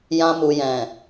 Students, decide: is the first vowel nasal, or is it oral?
nasal